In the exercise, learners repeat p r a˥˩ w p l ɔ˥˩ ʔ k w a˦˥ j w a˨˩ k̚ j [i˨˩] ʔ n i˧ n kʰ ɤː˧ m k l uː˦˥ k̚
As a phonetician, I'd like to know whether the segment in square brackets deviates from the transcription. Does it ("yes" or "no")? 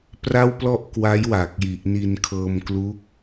no